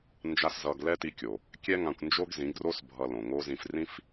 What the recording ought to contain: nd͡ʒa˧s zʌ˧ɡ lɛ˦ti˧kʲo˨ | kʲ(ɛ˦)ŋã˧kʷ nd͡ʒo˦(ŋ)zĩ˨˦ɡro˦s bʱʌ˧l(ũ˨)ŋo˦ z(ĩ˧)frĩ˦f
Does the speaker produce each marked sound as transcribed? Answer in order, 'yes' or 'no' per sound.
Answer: yes, no, no, yes

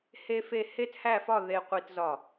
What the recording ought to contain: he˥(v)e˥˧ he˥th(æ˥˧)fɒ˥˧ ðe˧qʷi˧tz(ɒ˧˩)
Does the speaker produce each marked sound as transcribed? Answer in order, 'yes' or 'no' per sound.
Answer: no, yes, yes

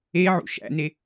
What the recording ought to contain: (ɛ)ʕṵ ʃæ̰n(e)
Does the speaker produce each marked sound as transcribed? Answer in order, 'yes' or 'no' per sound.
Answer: no, yes

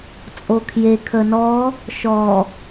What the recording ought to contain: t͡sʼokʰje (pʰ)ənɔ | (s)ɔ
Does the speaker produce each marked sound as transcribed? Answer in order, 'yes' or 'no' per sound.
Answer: no, no

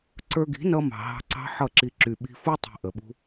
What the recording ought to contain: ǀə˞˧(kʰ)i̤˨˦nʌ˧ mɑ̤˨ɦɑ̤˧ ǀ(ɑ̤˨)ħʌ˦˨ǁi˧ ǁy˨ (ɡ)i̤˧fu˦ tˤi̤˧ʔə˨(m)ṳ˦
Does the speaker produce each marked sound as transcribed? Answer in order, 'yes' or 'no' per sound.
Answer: no, no, no, no

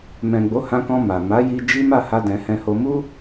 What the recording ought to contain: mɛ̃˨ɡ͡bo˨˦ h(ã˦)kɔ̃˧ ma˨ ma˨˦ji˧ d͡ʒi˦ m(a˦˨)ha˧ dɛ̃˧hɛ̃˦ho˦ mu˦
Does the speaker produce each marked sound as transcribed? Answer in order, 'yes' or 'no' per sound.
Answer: no, yes

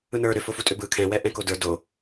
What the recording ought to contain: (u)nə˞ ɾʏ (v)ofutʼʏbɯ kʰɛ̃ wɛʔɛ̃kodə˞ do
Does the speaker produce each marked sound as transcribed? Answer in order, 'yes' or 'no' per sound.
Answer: no, no

